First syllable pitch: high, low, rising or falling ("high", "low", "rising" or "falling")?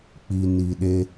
low